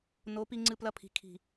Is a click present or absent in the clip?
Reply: present